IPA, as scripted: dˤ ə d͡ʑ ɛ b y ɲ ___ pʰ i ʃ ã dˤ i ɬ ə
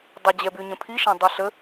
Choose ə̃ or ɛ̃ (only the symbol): ə̃